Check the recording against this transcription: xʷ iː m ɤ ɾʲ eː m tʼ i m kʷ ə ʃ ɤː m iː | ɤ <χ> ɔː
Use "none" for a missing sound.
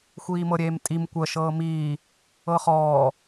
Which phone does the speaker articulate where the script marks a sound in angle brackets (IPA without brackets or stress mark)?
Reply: χ